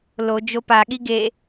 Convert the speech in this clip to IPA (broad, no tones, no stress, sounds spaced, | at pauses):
l o d͡ʒ o p a ɠ i ɡ e